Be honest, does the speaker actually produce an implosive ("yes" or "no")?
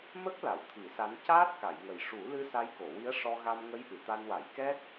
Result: no